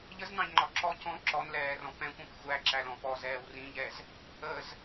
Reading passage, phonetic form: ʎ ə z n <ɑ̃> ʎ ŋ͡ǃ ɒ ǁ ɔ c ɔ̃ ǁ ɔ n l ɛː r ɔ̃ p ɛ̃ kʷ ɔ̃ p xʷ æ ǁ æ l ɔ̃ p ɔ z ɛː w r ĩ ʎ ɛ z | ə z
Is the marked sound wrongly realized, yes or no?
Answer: no